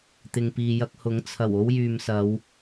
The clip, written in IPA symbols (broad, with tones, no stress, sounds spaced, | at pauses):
t̪ ɪ˨ ŋ p iː˨ j ɐ˧ k̚ h ʊ˨˥ ŋ t͡sʰ ɐ˨˩ w o˥ w j yː˨ m s ɐ˨˧ w